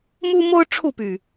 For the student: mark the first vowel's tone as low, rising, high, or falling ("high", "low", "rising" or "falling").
high